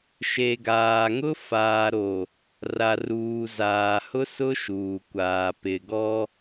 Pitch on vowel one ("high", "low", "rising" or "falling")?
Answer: low